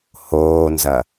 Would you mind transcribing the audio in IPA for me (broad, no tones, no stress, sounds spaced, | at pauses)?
h oː n z ɐ